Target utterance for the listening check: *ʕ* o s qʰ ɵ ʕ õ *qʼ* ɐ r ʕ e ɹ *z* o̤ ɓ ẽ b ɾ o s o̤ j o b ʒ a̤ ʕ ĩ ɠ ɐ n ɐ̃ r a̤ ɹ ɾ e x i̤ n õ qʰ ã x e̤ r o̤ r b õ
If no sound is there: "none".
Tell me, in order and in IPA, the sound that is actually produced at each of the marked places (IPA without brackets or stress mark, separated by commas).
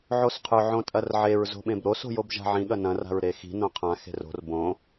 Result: ʕ, tʼ, z